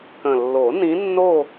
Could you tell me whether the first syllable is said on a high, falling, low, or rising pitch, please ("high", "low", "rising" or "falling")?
low